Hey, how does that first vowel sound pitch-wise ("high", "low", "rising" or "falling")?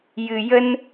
low